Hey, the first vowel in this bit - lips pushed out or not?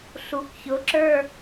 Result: yes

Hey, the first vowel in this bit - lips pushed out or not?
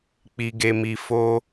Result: no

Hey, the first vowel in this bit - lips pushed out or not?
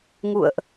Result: yes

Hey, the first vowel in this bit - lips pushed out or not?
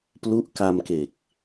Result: yes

